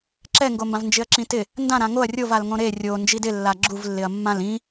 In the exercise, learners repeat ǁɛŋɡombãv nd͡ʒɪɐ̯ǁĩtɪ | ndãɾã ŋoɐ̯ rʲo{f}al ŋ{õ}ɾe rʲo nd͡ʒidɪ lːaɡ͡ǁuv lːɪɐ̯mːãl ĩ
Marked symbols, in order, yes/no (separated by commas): no, yes